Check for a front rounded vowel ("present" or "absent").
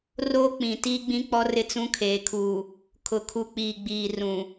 absent